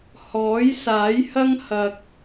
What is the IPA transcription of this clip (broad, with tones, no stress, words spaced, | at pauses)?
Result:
hɔː˨˥jsaː˨˥jhɐ˥ŋ hɐ˧k̚